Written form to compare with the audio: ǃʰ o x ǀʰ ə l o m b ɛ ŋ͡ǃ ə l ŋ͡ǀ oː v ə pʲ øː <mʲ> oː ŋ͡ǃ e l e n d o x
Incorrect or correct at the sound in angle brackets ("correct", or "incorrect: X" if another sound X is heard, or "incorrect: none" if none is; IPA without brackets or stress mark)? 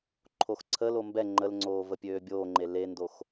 incorrect: bʲ